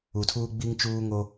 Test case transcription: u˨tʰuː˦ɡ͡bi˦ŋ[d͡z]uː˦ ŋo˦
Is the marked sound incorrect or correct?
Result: incorrect